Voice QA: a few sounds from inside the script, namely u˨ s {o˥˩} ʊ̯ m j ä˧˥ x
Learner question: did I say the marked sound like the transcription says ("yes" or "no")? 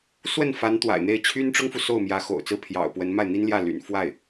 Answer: yes